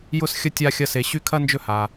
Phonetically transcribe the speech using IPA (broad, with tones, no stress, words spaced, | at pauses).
jʊ˥s xʲə˥tʲa˦xʲɐ˦ se˨ɕy˦ kʰɐ˥nd͡ʒɵ˦ ha˩